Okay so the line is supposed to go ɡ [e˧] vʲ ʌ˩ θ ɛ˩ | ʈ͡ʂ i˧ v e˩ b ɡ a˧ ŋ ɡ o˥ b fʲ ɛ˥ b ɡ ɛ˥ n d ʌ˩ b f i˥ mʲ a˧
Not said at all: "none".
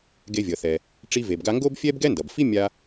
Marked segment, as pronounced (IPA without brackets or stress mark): e˧